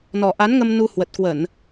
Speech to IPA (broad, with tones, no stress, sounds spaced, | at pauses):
n ɔ˨˩ ʔ a˨˦ n ŋ ə˧ m n u˧ h w ə˨˩ t̚ k w ə˧˩˨ n